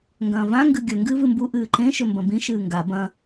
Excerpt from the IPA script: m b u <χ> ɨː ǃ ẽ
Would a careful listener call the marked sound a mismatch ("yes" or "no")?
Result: yes